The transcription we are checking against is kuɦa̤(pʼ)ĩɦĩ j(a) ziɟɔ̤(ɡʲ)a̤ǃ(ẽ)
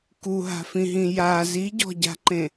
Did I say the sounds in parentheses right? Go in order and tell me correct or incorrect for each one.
incorrect: f, correct, incorrect: ɟ, correct

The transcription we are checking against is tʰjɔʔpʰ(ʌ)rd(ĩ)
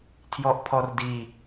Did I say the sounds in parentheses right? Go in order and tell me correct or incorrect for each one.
incorrect: ɔ, incorrect: i

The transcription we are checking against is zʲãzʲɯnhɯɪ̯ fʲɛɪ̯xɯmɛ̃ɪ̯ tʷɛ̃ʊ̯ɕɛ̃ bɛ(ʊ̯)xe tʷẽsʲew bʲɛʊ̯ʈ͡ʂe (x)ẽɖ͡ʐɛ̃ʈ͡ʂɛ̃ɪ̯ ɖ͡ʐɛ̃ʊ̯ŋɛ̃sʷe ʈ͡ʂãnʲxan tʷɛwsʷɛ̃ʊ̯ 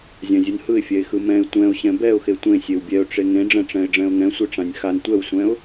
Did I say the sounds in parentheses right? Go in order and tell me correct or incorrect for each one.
correct, incorrect: ŋ

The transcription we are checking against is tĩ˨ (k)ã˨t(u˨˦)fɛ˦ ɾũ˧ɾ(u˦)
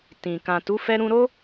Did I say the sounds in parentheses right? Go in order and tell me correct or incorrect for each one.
correct, correct, incorrect: o˦

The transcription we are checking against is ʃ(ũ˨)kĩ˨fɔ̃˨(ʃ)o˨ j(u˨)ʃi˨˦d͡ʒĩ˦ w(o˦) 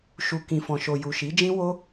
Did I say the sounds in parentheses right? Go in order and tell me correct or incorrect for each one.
incorrect: u˨, correct, correct, correct

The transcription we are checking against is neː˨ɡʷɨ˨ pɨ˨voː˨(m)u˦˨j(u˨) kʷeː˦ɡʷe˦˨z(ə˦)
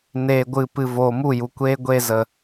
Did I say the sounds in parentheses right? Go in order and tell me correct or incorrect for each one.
correct, correct, incorrect: ə˨

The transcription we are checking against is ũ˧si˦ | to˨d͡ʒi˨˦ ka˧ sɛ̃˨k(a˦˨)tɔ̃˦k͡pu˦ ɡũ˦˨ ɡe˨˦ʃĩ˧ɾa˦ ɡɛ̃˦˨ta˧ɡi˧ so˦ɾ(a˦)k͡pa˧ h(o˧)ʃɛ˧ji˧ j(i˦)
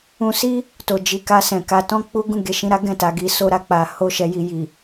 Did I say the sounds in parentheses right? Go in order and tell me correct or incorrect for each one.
incorrect: a˧, incorrect: a˧, incorrect: o˦, incorrect: i˨

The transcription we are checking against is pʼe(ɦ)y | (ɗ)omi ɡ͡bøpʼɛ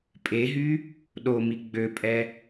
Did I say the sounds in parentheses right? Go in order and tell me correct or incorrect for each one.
correct, correct

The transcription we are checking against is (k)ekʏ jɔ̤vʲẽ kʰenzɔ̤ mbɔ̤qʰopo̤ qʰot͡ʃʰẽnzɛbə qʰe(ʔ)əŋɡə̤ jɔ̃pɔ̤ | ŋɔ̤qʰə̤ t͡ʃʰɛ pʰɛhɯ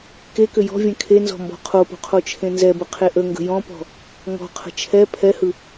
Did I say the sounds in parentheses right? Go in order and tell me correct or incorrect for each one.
correct, correct

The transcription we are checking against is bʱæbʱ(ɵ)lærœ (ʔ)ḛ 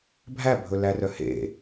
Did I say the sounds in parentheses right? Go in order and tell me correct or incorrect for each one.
correct, incorrect: h

